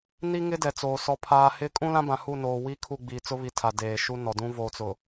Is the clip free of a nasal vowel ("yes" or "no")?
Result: no